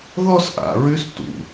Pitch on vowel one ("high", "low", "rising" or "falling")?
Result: high